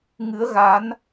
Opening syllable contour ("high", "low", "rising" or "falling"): rising